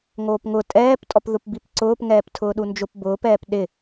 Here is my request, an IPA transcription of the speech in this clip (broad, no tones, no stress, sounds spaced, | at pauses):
ŋ oː p ŋ ʊ tʼ ɛː p tʼ ɔ p ð ʊ p b i p ǀ ʊː p ŋ ɛː p tʰ ʊː ɗ u n d͡ʒ ʊ p b ʊː p ɛː p ɗ ɪ